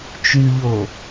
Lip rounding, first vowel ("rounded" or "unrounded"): rounded